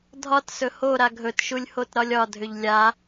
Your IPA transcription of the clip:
dʱɒt sɵho ɾaɡʱɵt ʃulʲhotɾɒlʲɒ dʱʏʎlʲa

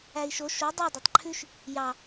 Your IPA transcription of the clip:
æi̯ʃo ʃo dˤi dˤɑtˤǃʰʉʃ | jɑ

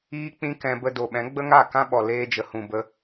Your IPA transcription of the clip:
iː˦k͡pĩ˦ kɛ̃˧bə˧ do˨ɓɛ̃˨˦ ɡ͡bə˦ŋa˦˨ kã˦ɓɔ˨ leː˧d͡ʒə˨hũ˨ bə˧

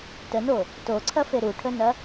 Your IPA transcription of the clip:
təno | toǀʰɐfe ɾuʈʰənɐ

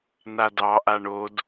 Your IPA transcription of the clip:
nadɑ ʔaɳod

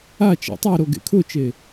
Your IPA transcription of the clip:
a t͡ʃa̰tˤeɾo ɡḛkʰʊt͡ʃe

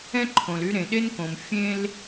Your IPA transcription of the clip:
ɛ̃˥ǃʰõ˩l y˥ ɾẽ˩ɗe˥nkõ˩m fʲẽ˥l

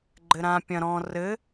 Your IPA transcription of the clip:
ɡ͡ǃɘɾã pʲɐ̃ ɾɔ̃ rɘ

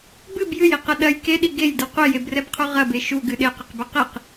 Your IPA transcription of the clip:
bɨb jɨjiqɐ ɗɐj keɗi ɡejdɨ qʷejebrɛbqʰu ʁɐbe ʃuɡɨ ɗeqɨqbi qiq

